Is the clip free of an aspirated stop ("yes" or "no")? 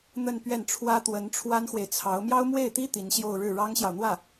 no